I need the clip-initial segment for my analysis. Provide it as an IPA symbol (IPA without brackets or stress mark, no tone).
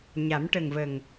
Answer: ɲ